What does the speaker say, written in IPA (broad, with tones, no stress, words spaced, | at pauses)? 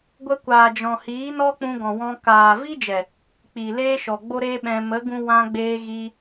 ɡʷə˧kʷaː˨ d͡ʒɔ̃˨hiː˨˦nɔ˦ k͡pũ˧ɡɔ̃˨wɔ̃˧ kaː˨vi˦d͡ʒɛ˨ | k͡piː˨leː˦ʃɔ˨ ɡ͡bo˦ɾe˦ɓɛ̃˧ mə˨˦ɡũ˧ wã˧ɡ͡beː˧ ɣi˧